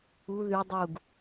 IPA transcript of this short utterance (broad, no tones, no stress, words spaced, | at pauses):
u ðy dˤuɡ